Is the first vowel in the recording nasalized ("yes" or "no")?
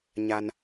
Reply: no